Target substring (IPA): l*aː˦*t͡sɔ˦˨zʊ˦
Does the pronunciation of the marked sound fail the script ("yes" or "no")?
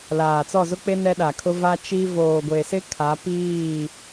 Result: yes